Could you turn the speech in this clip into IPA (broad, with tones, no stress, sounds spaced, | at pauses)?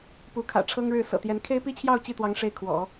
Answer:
p u˧˥ kʰ ä̰˨˩ ʈ͡ʂʰ ɤ˥ ŋ ɻ ɻ̩˥˩ s ɤ̰˨˩ t̪ j ɛ˧˥ n kʰ e˥ ɪ̯ p i˥ t͡ɕʰ j ɑ˥˧ ʊ̯ t͡ɕ i˥˩ t̪ w ɑ˧˥ ŋ ʂ e˥˩ ɪ̯ kʰ w ɔ̰˨˩˦